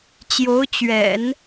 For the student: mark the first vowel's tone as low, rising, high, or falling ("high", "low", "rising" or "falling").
rising